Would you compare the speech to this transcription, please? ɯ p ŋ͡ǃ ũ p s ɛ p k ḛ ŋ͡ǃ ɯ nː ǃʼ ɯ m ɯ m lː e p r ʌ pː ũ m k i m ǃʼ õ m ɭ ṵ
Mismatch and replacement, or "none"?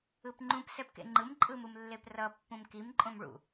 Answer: nː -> m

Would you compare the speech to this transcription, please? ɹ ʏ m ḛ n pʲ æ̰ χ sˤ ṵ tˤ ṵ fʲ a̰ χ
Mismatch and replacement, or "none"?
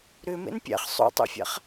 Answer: ɹ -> ɾ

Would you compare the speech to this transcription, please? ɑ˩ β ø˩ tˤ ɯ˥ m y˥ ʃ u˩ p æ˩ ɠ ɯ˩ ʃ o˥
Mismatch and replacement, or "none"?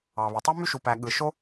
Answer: none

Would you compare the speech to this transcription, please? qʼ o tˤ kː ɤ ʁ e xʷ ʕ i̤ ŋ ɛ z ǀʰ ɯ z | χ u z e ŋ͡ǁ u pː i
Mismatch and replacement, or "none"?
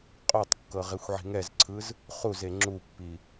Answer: none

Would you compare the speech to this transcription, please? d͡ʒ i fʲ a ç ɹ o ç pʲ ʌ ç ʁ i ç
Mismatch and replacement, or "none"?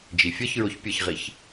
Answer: a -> ʌ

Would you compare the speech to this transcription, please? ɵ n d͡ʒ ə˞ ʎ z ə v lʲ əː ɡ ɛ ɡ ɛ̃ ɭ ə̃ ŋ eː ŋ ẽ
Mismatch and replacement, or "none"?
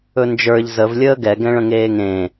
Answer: none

